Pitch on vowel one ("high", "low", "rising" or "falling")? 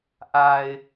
low